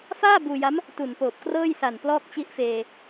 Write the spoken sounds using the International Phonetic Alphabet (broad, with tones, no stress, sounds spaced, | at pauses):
f aː˥˩ b uː˧ j a˦˥ m | t u˨˩ n p oː˨˩ p̚ k r ɤː˥˩ j s a˨˩ n p l ɔː˥˩ k̚ t͡ɕ i˦˥ ʔ f eː˧